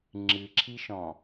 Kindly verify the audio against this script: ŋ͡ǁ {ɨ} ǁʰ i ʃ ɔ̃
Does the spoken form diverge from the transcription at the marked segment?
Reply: no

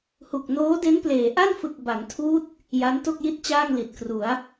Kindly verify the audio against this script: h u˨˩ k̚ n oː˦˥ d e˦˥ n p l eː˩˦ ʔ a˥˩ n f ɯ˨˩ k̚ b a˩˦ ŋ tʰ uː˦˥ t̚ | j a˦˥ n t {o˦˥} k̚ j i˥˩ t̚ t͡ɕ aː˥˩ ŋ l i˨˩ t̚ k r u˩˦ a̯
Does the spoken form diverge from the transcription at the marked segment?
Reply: yes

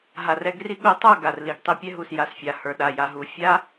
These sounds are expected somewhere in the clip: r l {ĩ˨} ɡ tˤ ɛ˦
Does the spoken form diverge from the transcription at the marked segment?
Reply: yes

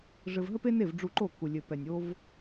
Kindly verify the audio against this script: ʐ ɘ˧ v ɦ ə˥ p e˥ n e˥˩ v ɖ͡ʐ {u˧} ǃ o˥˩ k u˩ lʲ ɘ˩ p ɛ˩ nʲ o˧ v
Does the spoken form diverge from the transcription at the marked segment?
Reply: no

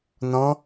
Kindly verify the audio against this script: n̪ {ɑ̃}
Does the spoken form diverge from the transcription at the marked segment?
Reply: yes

